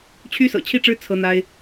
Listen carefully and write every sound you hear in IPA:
t͡ɕʰ y˥ s ɤ̰˨˩ t͡ɕʰ i˥˩ ʈ͡ʂ ɻ̩˥ t͡sʰ ɤ˥ n̪ a˥ ɪ̯

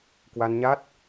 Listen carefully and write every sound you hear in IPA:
k w a˧ n ɲ a˦˥ t̚

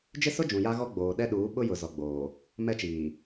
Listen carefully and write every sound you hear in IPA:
d͡ʒ ɪ˦ s ʊ˦ d͡ʒ ũ˨ j a˦ ɣ ɔ˦ ɡ͡b oː˨ ɗ ɛ˦ ɗ uː˨˦ ɓ ʊ˦ j ʊ˨ z ɔ˨ ɡ͡b oː˨ | m ɛ˦ t͡ʃ iː˨

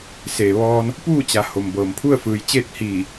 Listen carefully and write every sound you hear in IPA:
s eː˩ ʋ ɔː˧ n | p uː˥˨ t͡ɕ a˩ h o˩ m b ɤː˩ m pʰ u˥˨ ə̯ f ɯː˩ j t͡ɕ eː˥˨ t̚ h iː˧˩

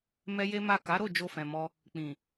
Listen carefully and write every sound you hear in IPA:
m ɛ˦ j e˦ m a˦˨ k a˨˦ ɾ o˦˨ d͡ʒ o˧ f ɛ̃˨ m ɔ˧ | k͡p ĩ˨

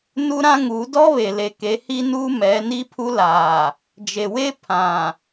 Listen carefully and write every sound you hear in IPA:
n u˦ ɾ ã˦ ŋ u˨˦ d ɔ˦ β e˨ l e˨ k e˨˦ h i˦ n uː˦ m ɛ˨˦ n i˦ pʰ u˦ l aː˨ | d͡ʒ e˨ w e˦ pʰ ã˨

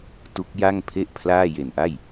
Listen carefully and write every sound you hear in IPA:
t u˦˥ k̚ j a˥˩ ŋ pʰ e˥˩ ʔ pʰ l aː˥˩ j e˨˩ n ʔ a˥˩ j

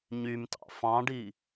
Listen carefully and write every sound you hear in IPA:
ɲ y m t ɑ̰ f ɑ̃ ɖ i

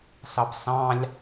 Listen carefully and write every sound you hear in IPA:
s ɑ p s ɑ̃ lʲ

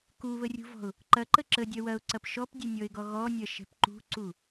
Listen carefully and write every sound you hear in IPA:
k u β ə rʲ ṳ v ɔ̤ ʊ̯ | ǃ ɐ ǃ ə ǁ ə dʲ ɐ w ɐ ʊ̯ ǀ ɐ p ʃ ɔ p dʲ ɛ nʲ ɔ ɪ̯ ɡ ɔ ɣ ɔ nʲ ɐ ʃ ɛ̤ p ǃ ṳ ǀ u

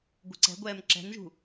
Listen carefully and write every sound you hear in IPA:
ɡʷ ə̤ ǀ ɛ̤ ɡʷ ɛː m ǁ ɛ̤ n ʒ ṳ

